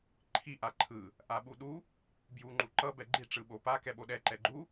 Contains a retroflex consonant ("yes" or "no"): yes